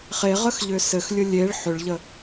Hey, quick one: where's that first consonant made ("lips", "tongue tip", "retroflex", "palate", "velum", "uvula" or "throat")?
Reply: uvula